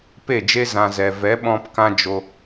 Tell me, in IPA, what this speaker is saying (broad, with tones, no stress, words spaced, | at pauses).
pe˦˨d͡ʒe˦ zã˧zɛ˨ vɛ˨˦ ɓɔ̃˦p kã˦d͡ʒo˧